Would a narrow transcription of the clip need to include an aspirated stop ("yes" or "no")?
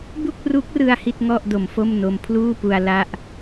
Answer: yes